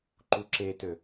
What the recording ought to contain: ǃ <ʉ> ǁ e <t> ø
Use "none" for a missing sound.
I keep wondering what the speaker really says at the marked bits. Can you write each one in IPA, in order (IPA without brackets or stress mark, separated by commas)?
u, t